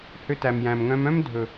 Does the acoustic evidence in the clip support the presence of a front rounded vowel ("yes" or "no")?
yes